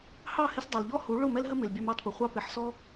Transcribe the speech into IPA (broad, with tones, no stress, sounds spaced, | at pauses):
h ɑ˦˨ h ɪ˧ s dˤ ʌ˨ l ʎ ɔ˦ h u˨˦ ɭ ʊ˦˨ m ɛ˦ l ɦ ə˦ m ɪ˨ l bʲ ɑ˧ m ɑ˦˨ t p ə˨ χʷ ɑ˧ p ɪ˨˦ ħ s ɔ˦